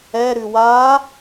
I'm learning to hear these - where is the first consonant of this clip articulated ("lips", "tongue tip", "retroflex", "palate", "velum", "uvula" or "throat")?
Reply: tongue tip